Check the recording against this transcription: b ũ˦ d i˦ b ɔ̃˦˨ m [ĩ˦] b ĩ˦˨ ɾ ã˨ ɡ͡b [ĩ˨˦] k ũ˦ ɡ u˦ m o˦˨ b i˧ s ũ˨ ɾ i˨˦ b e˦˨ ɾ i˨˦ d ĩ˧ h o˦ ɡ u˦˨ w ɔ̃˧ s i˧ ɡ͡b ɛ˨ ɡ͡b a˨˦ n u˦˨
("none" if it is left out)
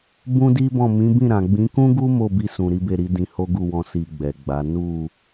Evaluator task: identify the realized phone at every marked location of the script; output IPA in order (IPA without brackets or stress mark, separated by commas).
ĩ˨˦, ĩ˨˦